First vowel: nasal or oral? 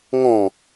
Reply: nasal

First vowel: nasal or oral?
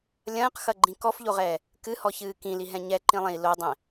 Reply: nasal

